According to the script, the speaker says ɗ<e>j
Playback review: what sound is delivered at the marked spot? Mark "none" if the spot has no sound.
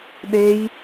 e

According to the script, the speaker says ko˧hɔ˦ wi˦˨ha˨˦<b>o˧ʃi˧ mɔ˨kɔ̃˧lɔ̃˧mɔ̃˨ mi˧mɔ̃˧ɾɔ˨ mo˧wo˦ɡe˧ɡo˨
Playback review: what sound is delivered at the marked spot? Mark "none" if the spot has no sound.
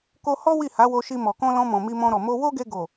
w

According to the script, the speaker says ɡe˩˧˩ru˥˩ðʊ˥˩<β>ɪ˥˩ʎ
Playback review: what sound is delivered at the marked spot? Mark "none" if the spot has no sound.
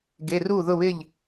β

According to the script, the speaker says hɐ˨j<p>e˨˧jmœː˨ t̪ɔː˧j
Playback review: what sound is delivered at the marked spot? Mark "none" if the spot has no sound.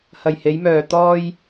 h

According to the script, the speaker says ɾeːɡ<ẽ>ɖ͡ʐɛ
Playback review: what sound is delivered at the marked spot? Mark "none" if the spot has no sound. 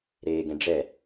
ẽ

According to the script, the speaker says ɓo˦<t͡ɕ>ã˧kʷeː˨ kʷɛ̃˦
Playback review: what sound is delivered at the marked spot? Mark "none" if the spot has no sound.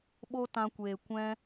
t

